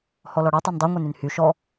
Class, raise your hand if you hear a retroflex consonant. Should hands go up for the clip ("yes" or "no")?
yes